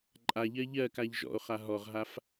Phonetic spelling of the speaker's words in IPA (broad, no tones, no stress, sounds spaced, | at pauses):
ǃʼ a ʎ ɜ ʎ ɜ k a ʎ ʒ ɔ̰ o̯ χ a ɦ ɔ ʁ ɦ a f